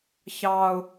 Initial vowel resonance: oral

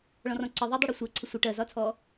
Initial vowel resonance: nasal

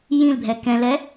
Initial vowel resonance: nasal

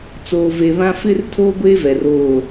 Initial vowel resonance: oral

